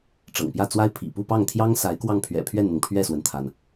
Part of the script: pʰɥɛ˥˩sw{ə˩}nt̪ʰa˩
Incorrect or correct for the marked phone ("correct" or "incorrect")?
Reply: correct